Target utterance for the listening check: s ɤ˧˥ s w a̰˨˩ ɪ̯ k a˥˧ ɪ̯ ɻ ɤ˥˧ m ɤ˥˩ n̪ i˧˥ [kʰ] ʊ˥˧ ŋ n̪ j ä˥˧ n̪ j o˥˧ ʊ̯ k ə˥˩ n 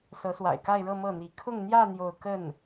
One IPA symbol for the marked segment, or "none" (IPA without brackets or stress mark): kʰ